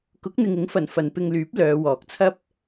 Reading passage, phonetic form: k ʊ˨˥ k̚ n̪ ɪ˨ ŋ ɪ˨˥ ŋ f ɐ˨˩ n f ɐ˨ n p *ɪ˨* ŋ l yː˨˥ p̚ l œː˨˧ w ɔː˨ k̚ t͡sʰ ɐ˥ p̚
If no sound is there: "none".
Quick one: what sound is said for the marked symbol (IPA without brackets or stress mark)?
ɪ˧